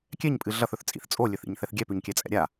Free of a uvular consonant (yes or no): yes